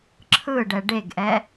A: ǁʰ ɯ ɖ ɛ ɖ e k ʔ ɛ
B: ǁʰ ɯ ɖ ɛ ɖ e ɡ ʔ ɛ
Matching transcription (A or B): B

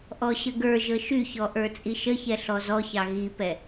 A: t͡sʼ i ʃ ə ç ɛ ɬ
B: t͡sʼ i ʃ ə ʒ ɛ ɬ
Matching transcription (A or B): A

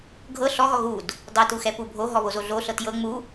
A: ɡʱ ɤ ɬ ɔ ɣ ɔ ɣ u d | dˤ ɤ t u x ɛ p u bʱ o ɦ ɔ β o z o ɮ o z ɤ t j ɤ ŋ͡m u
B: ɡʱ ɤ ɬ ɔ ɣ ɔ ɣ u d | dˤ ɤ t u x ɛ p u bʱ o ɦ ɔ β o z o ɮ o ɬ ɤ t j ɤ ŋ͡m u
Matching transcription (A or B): B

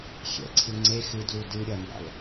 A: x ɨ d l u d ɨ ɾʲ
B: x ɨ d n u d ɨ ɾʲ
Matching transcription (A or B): A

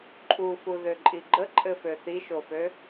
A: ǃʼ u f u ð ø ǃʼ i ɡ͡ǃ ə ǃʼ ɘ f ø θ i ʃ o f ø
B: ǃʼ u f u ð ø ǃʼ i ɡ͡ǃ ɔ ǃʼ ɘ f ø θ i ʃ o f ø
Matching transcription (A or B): A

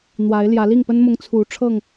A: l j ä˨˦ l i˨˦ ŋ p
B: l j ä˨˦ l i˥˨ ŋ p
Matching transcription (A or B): B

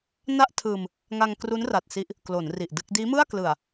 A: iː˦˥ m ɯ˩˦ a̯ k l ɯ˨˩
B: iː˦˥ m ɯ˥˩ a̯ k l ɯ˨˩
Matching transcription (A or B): B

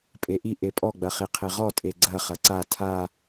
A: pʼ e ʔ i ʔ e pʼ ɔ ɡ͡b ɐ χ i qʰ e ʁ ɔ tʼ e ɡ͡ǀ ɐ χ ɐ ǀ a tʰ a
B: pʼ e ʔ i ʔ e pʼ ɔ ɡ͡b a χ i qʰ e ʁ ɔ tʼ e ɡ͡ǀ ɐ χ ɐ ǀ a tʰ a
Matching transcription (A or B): A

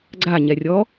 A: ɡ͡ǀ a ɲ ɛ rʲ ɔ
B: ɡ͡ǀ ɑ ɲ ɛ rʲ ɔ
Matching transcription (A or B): A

